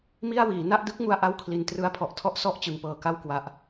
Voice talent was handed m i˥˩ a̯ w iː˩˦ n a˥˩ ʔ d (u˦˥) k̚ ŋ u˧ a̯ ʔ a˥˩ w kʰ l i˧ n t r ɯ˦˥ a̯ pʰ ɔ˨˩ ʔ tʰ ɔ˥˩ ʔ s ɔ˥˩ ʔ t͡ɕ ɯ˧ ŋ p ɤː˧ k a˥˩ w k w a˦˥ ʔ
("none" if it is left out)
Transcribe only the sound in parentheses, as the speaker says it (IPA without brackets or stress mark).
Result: ɯ˦˥